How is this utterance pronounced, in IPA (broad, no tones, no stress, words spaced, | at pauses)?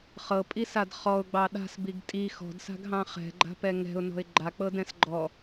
χɤpʼisad χɔʊ̯ɡ͡bɑ ɗa̤sbiɡ tʼi xɔ̤dsa̤ɡɦɑ̃ χɛ̤ɡ͡ǃa̤pɛ ŋɛ̤ʊ̯nɔ̤ɪ̯ ɡ͡ǃak͡pɤdɛ̃s ɡ͡ǃɔ